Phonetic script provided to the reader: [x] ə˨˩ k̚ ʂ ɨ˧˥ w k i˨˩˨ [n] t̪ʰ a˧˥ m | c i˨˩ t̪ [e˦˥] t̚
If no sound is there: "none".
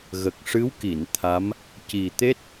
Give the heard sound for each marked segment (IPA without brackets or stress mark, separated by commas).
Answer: ɣ, n, e˦˥